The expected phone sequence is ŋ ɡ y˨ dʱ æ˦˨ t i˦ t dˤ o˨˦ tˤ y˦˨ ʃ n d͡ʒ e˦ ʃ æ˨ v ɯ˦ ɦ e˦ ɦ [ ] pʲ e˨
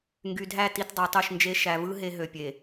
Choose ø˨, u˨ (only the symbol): ø˨